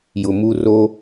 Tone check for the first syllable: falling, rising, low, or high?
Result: low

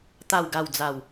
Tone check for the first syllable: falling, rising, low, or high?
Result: low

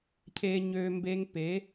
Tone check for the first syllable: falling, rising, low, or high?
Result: low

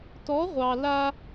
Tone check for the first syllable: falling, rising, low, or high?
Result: rising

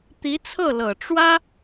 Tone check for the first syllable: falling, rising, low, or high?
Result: rising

